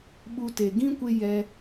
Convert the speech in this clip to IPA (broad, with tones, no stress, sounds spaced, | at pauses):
ɓ u˧ t e˨ ɡ ĩ˦ kʷ e˧ j ɛ˧